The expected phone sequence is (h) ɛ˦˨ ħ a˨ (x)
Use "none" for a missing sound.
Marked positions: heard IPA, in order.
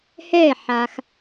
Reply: h, x

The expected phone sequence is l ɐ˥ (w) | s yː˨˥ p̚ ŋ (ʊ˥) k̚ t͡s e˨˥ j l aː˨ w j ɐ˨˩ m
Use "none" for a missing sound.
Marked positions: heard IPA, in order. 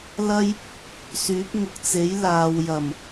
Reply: j, ʊ˨˥

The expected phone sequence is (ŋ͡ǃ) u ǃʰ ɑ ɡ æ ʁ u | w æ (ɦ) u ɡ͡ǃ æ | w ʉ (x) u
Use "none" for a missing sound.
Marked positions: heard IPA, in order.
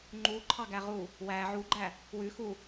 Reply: ŋ͡ǃ, ʕ, x

